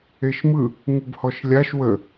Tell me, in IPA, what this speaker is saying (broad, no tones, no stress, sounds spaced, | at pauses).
e ʃ m ɯ | ŋ u b h ɔ ʃ lʲ a ʃ w ə